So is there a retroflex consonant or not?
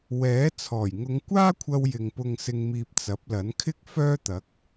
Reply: no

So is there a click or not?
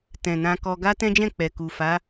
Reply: no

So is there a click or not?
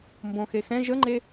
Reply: yes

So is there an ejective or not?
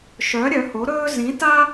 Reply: no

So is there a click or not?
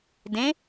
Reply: no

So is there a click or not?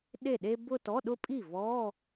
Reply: no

